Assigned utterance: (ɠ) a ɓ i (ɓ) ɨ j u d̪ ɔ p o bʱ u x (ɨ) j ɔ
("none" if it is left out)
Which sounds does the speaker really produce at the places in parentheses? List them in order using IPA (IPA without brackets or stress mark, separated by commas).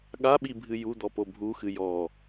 ɠ, bʱ, ɨ